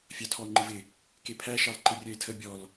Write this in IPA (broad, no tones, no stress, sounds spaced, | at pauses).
fʲ ɑ tʰ ɔ o̯ ŋ͡ǃ ɪ v ɪ | k e pʰ æ ʃ ɑ l ǃ ɪ rʲ œ e̯ tʰ ə bʲ ɔ l